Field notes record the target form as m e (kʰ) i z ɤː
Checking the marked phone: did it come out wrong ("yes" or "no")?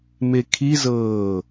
no